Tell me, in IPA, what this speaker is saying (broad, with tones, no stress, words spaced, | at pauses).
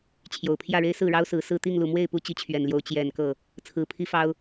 t͡ɕʰjo˨˩ʊ̯pʰjä˥˩ɻe˥ɪ̯ sɹ̩˥˩ɻɑ˥ʊ̯sɹ̩˧˥ sɹ̩˥˧ t̪i˥˩ŋlu˨˩mwe˥˩ɪ̯ pu˥t͡ɕi˧˥t͡ɕʰɥɛ˨˩nljo˧˥ʊ̯ t͡ɕjɛ˨˩n kɤ˥˩ | t͡sʰɹ̩˧˥pʰi˥fɑ˥ʊ̯